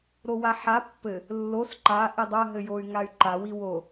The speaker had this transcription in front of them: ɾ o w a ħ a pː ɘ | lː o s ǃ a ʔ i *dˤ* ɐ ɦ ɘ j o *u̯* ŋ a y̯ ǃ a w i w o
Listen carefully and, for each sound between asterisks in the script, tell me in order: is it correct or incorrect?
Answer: correct, incorrect: y̯

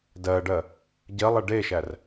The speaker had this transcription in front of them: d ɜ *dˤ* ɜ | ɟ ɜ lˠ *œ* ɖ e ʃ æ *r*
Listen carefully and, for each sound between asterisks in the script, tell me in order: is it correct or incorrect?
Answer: incorrect: ɖ, incorrect: ɛ, correct

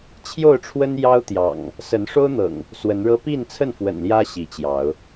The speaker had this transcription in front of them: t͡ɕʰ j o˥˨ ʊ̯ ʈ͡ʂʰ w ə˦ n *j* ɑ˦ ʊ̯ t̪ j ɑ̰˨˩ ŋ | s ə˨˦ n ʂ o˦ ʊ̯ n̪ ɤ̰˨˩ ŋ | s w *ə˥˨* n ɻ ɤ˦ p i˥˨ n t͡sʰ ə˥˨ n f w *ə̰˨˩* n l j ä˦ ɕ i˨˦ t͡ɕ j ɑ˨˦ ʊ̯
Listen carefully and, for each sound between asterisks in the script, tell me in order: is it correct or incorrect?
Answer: correct, incorrect: ə˨˦, correct

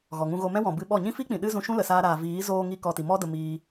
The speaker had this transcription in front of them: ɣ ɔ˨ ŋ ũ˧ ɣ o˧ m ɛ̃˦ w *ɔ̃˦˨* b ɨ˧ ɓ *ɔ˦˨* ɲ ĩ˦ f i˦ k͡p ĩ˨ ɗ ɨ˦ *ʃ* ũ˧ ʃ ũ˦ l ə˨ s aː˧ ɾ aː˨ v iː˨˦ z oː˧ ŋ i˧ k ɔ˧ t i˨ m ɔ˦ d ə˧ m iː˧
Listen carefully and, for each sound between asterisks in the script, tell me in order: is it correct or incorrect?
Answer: incorrect: ɔ̃˨, correct, incorrect: z

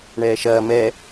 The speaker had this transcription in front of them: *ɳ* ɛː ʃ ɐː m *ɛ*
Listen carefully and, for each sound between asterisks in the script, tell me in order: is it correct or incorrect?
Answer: correct, correct

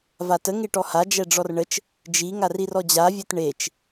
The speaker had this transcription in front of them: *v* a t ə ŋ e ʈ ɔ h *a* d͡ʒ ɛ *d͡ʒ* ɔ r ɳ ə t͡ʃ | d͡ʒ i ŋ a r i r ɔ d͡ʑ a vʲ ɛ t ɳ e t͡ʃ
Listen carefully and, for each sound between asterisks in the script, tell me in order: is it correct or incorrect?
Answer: correct, correct, incorrect: ɖ͡ʐ

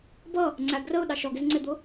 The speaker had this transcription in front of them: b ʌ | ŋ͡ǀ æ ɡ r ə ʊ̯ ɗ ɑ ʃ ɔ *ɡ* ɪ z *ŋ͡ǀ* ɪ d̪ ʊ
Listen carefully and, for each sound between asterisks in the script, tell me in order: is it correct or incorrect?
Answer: correct, correct

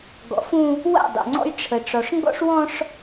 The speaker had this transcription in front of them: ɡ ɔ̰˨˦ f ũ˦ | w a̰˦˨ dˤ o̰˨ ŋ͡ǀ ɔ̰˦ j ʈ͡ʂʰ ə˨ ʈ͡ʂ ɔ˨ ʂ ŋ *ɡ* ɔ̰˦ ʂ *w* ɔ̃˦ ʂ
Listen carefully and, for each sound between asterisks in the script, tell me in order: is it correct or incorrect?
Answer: correct, correct

